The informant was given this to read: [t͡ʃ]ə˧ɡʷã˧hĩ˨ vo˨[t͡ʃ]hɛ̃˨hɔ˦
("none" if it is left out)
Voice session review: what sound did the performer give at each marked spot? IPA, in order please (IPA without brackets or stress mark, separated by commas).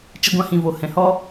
t͡ʃ, none